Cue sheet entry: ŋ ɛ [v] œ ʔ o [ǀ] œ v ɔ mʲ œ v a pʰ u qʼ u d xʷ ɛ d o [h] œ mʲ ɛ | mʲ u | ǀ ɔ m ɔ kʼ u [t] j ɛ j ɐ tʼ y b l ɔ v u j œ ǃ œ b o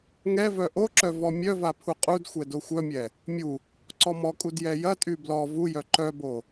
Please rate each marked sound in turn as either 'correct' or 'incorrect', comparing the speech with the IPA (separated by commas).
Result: correct, incorrect, incorrect, incorrect